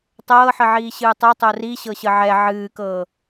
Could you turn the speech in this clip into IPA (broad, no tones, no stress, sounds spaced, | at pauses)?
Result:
tˤ ɤː ħ ə ʕ iː ɕ ɨː tˤ ɤ tˤ o r i ɕ ɤ ɕ ə ʕ ɛ ʕ ɨː k ɤː